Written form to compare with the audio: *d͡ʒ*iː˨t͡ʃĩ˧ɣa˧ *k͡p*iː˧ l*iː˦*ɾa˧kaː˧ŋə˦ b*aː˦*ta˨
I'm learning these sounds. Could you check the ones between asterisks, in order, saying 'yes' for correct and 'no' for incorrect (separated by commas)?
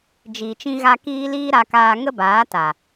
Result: yes, no, yes, no